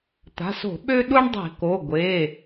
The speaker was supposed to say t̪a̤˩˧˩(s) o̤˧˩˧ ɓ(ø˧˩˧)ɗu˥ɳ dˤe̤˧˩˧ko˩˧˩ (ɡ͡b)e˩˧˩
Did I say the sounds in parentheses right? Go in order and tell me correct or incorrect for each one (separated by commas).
correct, incorrect, incorrect